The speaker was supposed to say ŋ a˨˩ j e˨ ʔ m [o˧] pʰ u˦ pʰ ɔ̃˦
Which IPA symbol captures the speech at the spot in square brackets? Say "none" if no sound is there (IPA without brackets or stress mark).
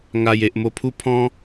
o˧